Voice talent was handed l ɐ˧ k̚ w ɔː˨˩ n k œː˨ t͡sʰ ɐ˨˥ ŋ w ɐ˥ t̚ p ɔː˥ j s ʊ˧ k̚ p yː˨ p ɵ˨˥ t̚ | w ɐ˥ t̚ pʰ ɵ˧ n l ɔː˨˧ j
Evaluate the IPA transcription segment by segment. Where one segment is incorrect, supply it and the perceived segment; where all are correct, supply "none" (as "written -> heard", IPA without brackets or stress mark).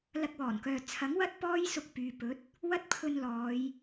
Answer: none